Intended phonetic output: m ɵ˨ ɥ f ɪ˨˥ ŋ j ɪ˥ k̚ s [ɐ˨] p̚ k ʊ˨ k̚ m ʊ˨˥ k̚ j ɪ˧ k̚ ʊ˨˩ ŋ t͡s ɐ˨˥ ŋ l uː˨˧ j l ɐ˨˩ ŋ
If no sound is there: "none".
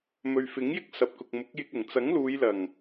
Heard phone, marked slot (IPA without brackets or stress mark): ɐ˨